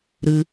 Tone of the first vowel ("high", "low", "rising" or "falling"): low